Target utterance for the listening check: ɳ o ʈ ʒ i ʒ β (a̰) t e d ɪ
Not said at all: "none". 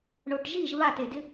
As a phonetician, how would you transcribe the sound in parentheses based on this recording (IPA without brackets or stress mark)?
a